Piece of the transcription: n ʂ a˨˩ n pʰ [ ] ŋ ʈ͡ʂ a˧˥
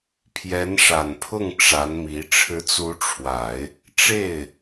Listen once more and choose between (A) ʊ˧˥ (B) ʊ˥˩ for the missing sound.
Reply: B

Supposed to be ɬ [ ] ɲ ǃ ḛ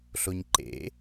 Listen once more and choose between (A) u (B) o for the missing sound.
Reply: B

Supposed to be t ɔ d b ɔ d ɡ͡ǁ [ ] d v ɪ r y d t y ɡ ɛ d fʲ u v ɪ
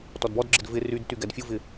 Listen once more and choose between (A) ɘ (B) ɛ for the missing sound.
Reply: A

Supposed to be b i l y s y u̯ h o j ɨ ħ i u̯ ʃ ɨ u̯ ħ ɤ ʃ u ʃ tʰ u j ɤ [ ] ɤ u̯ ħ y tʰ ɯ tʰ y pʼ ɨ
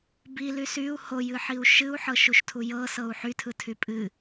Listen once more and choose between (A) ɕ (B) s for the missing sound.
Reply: B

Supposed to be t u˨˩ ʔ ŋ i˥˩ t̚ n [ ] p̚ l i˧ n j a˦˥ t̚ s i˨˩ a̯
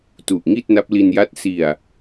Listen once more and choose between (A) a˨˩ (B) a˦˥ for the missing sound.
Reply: B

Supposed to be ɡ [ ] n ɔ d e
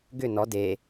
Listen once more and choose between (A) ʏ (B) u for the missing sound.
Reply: A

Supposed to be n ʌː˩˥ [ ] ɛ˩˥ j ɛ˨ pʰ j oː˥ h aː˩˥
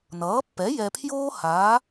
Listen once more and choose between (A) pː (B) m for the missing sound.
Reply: A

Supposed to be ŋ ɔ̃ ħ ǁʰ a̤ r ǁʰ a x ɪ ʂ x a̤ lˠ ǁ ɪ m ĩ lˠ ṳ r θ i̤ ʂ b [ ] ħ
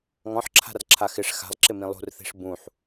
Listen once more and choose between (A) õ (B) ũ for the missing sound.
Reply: B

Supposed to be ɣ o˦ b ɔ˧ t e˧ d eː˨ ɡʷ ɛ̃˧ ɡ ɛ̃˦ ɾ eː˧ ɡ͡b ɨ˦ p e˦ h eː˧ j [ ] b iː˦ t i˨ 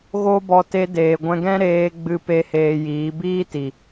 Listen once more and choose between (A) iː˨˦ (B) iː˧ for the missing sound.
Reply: A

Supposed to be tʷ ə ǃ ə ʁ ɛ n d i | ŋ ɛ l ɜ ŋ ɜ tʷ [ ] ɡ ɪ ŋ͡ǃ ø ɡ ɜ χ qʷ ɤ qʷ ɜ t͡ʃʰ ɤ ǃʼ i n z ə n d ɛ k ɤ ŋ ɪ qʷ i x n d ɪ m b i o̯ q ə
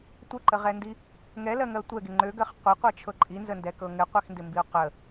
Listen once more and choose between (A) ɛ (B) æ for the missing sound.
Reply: A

